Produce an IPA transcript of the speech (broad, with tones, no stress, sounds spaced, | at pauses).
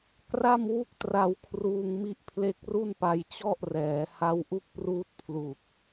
k r a˥˩ m w u˥˩ k̚ t r a˧ w kʰ r uː˧ ŋ m i˦˥ ʔ pʰ l e˦˥ k̚ r u˥˩ n p a˧ j t͡ɕ ɔ˥˩ ʔ r ɛː˩˦ h a˦˥ w ʔ u˥˩ k̚ p r uː˦˥ t̚ pʰ l u˨˩ k̚